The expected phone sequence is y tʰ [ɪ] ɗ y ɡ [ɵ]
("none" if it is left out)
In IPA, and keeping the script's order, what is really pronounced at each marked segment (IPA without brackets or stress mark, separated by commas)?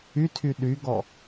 y, ɔ